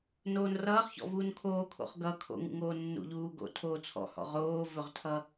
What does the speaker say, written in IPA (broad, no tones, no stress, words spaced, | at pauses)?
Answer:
noːnrʌːχçɔ̰vuːn kʰoːkʰo̰χɡʌ kʰo̰ŋṵŋoː nːṵʎuːɡo̰ tʰoːt͡sʰɔ̰hɔ̰ ʁoːvɵʁtʰʌ